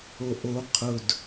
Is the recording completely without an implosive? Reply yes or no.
yes